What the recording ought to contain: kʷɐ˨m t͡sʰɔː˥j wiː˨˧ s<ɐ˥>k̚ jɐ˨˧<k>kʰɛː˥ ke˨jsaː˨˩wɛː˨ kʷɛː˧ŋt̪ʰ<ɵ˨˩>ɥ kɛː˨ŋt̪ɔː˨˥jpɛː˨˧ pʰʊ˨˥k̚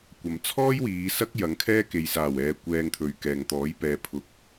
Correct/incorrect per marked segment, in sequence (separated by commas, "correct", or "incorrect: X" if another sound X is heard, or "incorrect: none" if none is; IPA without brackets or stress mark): correct, incorrect: ŋ, incorrect: ɵ˨